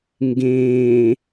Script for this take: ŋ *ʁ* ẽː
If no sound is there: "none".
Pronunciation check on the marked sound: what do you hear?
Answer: ɡ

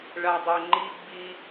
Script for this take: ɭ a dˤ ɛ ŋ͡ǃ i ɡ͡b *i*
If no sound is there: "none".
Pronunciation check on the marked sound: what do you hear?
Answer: i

